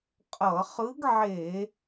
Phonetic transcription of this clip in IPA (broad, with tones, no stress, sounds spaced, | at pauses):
qʼ ʌ˧˩˧ χ ɯ˧˥ ɡ ʕ e˧˩˧